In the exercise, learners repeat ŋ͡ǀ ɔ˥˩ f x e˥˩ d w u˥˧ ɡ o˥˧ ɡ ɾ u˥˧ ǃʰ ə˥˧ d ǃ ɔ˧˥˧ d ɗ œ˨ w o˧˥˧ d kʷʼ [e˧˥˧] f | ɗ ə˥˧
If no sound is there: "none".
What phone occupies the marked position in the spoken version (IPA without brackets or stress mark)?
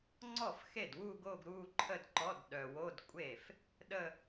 e˥˩